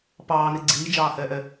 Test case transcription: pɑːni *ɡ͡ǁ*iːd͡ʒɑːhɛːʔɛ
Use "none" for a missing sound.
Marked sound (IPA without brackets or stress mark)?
ɡ͡ǀ